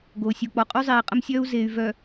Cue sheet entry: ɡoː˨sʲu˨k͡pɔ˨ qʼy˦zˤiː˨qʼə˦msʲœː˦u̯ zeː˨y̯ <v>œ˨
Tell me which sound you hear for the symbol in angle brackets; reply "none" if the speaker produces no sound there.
v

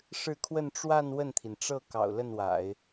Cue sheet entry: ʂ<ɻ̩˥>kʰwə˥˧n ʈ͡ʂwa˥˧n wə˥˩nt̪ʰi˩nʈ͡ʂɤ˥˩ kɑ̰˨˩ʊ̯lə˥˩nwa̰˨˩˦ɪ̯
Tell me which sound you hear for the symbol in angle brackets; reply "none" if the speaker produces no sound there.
ɻ̩˥˧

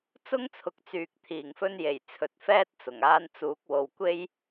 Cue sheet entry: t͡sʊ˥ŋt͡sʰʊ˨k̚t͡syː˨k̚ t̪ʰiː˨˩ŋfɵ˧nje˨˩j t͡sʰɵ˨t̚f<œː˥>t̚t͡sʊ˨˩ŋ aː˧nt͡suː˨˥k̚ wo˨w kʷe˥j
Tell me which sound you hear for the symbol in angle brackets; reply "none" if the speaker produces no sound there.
ɛː˥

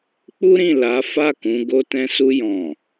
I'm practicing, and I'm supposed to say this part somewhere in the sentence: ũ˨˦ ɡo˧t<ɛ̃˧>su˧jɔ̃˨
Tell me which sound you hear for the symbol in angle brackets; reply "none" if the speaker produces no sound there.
ɛ̃˧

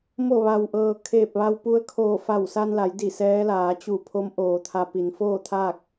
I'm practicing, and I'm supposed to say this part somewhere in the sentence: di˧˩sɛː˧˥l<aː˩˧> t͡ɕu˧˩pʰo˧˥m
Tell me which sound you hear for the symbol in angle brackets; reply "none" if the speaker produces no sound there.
aː˩˧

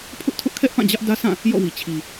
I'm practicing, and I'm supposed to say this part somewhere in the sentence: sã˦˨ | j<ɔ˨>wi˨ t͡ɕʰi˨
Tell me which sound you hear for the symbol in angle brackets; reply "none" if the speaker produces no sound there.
ɔ̰˦˨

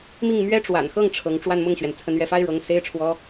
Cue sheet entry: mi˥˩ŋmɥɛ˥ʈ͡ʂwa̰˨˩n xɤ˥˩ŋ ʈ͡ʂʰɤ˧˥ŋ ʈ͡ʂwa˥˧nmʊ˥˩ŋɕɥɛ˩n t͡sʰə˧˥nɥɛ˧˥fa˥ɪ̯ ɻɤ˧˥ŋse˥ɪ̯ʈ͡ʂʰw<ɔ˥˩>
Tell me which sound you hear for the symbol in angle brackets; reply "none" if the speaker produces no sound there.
ɔ˥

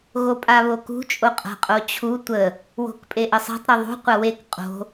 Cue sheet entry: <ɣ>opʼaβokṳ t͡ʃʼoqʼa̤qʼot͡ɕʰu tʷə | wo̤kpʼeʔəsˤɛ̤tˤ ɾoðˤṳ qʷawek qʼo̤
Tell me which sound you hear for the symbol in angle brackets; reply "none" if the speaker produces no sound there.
ɣ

